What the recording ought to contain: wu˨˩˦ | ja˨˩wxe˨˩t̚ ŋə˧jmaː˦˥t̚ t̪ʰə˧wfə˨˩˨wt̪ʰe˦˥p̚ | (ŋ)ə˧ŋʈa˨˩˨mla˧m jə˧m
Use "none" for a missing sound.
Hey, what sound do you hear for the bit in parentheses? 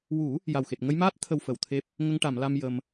ŋ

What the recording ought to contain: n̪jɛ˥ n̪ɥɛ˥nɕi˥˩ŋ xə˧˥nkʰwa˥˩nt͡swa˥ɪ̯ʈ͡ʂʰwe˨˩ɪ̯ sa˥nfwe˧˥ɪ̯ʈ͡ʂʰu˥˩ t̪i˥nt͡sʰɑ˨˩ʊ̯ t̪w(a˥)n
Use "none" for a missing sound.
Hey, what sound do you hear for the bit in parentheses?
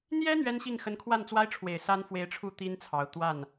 a˥˩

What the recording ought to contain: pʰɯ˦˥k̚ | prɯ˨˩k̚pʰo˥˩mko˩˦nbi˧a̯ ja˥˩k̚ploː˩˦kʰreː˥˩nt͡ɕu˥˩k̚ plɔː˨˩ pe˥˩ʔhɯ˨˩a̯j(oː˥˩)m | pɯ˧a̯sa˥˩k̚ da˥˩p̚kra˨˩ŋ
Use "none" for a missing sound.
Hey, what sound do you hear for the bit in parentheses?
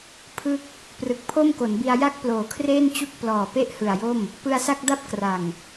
o˥˩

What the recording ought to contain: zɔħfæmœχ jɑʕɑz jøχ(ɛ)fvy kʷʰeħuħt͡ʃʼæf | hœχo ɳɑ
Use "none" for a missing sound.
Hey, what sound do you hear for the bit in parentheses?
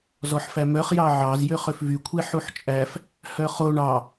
ø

